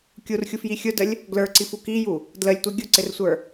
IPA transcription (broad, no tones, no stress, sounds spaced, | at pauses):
kʲ u r xʲ u f j i xʲ ʊ d ə lʲ | ɡ l ə˞ ǀ i f u k i j u | d l ə lʲ tʷ i ɡʲ ʊ ǀ ɪ r sʷ ə˞